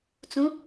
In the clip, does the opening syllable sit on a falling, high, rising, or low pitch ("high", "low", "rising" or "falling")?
rising